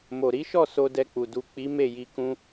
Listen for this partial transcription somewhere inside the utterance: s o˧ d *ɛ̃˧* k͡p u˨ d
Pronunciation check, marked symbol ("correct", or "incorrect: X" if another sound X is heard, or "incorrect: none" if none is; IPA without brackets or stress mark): incorrect: ɛ˧